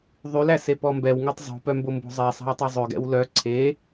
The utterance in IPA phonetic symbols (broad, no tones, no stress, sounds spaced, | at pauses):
ðˤ y l æ s e p ɔ m b ɛ w ŋ ø tˤ zˤ o̤ p œ m b o m b o̤ zˤ ɛ sˤ ɑ̤ w tˤ ø zˤ ø ɡ ɛ̰ w l œ ǀʰ e